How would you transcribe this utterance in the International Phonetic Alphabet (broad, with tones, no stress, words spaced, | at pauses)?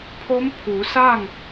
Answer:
pʰo˧˥mpʰuː˩˧saː˥˨ŋ